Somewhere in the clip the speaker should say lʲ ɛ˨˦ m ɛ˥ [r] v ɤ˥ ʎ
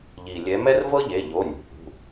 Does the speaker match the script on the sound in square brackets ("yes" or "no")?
yes